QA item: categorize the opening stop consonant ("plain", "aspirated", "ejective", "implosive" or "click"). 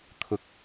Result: aspirated